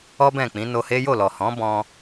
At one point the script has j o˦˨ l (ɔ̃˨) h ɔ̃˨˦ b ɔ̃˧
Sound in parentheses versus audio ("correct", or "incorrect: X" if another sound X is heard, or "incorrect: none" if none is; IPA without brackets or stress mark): incorrect: ɔ˨